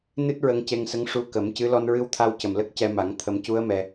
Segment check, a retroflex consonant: present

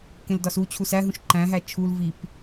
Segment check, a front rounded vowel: absent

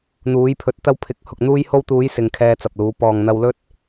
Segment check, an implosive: absent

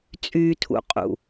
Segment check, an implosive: absent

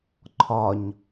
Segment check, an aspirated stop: present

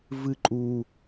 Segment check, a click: present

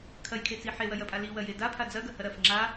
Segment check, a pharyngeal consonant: present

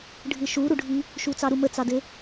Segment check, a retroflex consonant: present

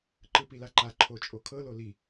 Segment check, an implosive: absent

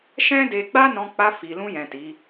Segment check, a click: absent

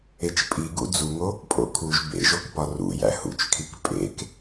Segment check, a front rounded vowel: absent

